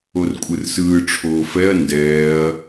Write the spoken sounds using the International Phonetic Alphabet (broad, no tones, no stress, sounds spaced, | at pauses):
o r kʷʼ ɯ r s ɯː ʈ͡ʂʰ oː f ɛ ɐ̯ n d ɛː ɐ̯